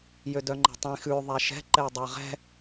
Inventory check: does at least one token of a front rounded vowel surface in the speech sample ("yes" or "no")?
yes